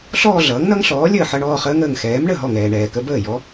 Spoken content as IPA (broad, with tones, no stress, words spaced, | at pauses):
ɬɔː˥˧ɮʌː˩˥ŋnʌ˦˥ŋɬɔː˩˥ lʲəː˥˩ħʌ˥˧ɳɔː˥˧χəː˦˥ŋ əː˩ŋxɛː˩˥mɳə˥˩ ɦɔ˥˩ŋɛː˩ɳɛː˩kə˧˥˧ bəː˥˩jɔ˩˥